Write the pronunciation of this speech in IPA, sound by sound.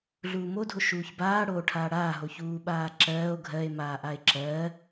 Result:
ɮ uː m o dʱ o ʃ uː ç b aː ɽ oː ʈʰ aː ɽ aː ɦ o ç uː ɓ aː ǁ ɜː o̯ ɡʱ ɜ e̯ m aː ʔ a e̯ ǁ ɜː

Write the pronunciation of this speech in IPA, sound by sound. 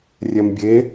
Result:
rʲ ɛ m bʲ e

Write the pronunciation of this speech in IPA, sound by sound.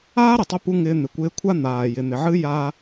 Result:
aː˦ ɾ ɘ˨ tˤ ɘ˧ p u˧ ŋ ɪː˧ n̪ ɪ˨ kʷ ɪː˧ kʷʰ a˦ n̪ aː˨ j ɪ˨ n̪ ɪ˨ ʕ ɨ˦ j aː˧

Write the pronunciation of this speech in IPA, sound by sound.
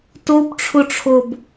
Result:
t o b ʈ͡ʂʰ ʊ ʈ͡ʂʰ o b

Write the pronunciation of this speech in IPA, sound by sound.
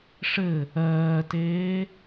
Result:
ʂ ɘ | ɜː t eː

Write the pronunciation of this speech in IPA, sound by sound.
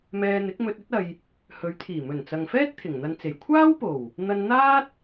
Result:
m ɛː˧ n̪ ɪ˨˥ k̚ m ɵ˧ t̚ ɵ˥ t̚ ɐ˧ j | h ɵ˨˧ ɥ t̪ʰ iː˨˩ m ɵ˨˩ n t͡s ɐ˨ ŋ f ɛː˥ t̚ t̪ʰ ɪ˨˩ ŋ n̪ ɐ˧ n t͡s e˨˩ j kʷʰ aː˥ w p o˨˩ w | n̪ ɐ˧ n n̪ aː˥ t̚

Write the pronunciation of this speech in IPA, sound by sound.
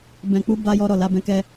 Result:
b ɛ̃˨ k͡p u˧ b a˦ j ɔ˦ ɾ ɔ˦˨ l a˧ b ɛ̃˧ k ɛ˧

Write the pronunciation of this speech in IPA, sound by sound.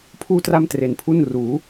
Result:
pʰ uː˥˩ t r a˥˩ m t r e˩˦ n pʰ u˥˩ n r uː˩˦

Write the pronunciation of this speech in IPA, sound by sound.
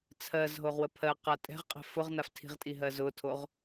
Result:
t͡sʰ ɜ z ɦ o ʁ w ə pʰ ɜ q a tʼ ɛ̤ ʁ qʼ ɛ̤ f ʊ ʁ n a f tʰ i̤ ʁ tʼ i ɦ ɜ z ʊ tʰ o ʁ

